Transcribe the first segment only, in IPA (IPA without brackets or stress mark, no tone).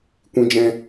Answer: kʷ